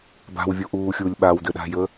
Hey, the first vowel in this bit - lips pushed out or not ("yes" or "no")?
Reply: no